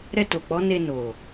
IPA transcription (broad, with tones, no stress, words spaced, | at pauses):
ɾɛ˧to˨k͡pɔ˨˦ne˧ no˨